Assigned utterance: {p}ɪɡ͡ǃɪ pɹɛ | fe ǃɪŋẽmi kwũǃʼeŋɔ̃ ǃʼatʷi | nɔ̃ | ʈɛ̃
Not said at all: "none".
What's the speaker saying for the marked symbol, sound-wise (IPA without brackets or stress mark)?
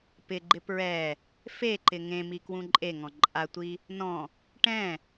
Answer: p